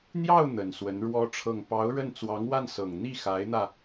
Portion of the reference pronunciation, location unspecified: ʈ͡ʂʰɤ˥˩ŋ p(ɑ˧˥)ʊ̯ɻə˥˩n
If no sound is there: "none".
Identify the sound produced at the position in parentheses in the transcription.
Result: ɑ˧˥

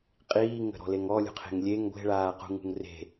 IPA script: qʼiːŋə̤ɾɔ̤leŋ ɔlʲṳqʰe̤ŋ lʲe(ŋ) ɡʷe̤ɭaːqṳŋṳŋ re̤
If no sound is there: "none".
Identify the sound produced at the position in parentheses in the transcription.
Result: ŋ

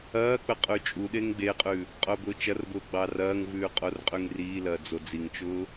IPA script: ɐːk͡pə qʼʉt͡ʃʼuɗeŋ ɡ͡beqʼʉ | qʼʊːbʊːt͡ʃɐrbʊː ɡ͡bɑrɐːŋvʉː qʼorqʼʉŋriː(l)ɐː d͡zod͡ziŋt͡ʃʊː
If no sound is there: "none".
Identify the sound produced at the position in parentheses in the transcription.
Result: l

